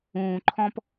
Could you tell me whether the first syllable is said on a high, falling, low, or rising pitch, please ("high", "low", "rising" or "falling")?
low